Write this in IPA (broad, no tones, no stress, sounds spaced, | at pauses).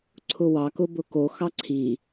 ǀʰ ʊ w ɑ k ʊ b ʊ k o x ɑ ǀʰ i